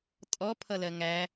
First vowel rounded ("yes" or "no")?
yes